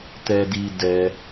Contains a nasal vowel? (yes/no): no